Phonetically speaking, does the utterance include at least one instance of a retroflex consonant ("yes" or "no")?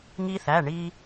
yes